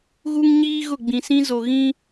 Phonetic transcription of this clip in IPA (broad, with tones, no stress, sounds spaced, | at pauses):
ɣ u˦ ŋ ɲ iː˦ ɣ ʊ˦˨ ɡ͡b ĩ˨ s ĩ˦ z o˨ ɣ ĩ˦